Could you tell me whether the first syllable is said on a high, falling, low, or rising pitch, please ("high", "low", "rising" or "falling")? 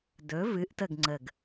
rising